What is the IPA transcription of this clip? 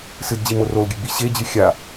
s ɨ d d͡ʑ i m o r o l ɡʲ ɨ ɡ͡b i ɕ e d͡ʑ ɨ xʲ a

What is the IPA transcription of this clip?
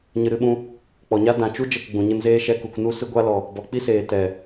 ɲ ɨ˨ ɾ ɨ˧ ɓ ũ˧ | k͡p ɔ˨ ɲ a˦ d ã˨ t͡ʃ u˦ d͡ʒ ɛ˦˨ k ɡ͡b ũ˨ ɲ ɨ˧ n z eː˦ ʃ ɛ˧ k u˨ k n u˧ s ɨ˧ ɡʷ a˧ l ɔ˨ | b ɔ˨ k͡p i˦ s eː˨ t ɛ˨

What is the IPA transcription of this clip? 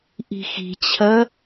ʔ i̤ x i̤ t͡ɕʰ ɐ

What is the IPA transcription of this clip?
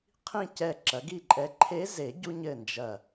qʰ ĩ˥˨ c ɛ˥˨ ǁ ɐ˩˥ ɡ i˥˨ ǃʼ ɛ˧˥ ǃʰ e˧˥ z e˨˩˦ ɟ u˧ ɲ ɘ˧˩ n d͡ʒ ɐ˧˩

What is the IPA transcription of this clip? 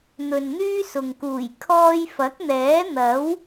n̪ ɵ˨ n n̪ yː˥ s ʊ˨ ŋ k uː˨˩ j kʰ ɔː˧ j f ɐ˨˥ k̚ n̪ ɛː˨˥ n̪ ɐ˨˥ w

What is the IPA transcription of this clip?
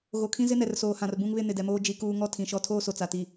ɣ o˨ kʰ ĩ˦ z ɪ˦ n ɛ˨ r s oː˨ h ã˨ r b ũ˦ ŋ β ɪ˦ n ɪ˨ d ɛ˨ m oː˦ d͡ʒ i˦ k uː˦ ŋ ɔ˦ tʰ ĩ˨ ʃ ɔ˦ tʰ oː˦ s o˨ t͡s a˨ t i˨

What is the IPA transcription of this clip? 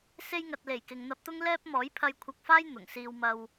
s e˧ j ŋ ɐ˨ t̚ l e˨˩ j k ɪ˨ ŋ n̪ ɐ˧ p̚ t̪ ʊ˥ ŋ l ɛː˥ p̚ m ɔː˨˥ j pʰ ɐ˧ j kʷʰ ɐ˧ k̚ f aː˥ j n̪ ʊ˨˩ ŋ s iː˧ w m ɐ˧ w

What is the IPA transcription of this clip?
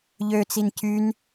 ʎ ø t͡s i n c y n

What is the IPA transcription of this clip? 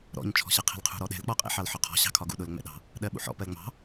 ɾ ɔ̰ ɲ t͡ʃʰ ɔ̤ ɕ ɜ qʰ ɛ̤ l qʰ ṳ ɾ ɔ ɗ ɛ̤ l k͡p ɔ qʼ ɛ̰ ħ ɑ l ħ ɔ qʰ ɔ̤ ɕ ɑ̤ kʰ ɒ ɡ ṵ ɗ ʊ l ŋ͡m ɛ̰ ɗ ɑ̤ | ɗ ɜ ɓ ṵ ħ ɔ̰ p ɜ l ŋ͡m ɑ̤

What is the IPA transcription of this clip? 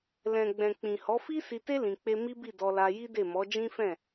l ɛ̃˨ ɡ͡b ɛ̃˨ k͡p ĩ˨ h ɔ˨˦ f i˦ s i˧ t e˦ l ĩ˧ k͡p e˦ m i˦ b i˦˨ d ɔ˧ l a˧ j i˦ d e˦˨ m ɔ˨˦ d͡ʒ ĩ˦ f ɛ̃˦˨

